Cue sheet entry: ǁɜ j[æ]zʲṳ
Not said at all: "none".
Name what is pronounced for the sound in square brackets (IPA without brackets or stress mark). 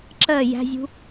æ̤